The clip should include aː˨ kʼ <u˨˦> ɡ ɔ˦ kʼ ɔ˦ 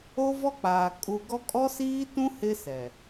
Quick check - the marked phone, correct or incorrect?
incorrect: u˨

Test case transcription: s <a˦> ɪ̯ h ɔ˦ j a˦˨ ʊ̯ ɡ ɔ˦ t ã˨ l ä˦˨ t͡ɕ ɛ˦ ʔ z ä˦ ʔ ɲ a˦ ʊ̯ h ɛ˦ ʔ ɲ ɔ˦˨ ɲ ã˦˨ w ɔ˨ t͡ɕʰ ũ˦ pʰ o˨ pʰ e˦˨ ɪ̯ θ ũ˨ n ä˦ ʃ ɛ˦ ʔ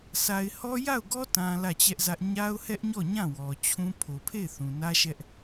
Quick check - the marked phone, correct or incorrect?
incorrect: a˨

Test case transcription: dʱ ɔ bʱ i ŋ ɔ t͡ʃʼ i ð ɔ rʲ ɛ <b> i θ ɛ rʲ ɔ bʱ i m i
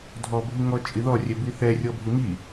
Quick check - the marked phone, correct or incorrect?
correct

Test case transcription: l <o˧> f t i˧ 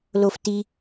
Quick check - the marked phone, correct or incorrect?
correct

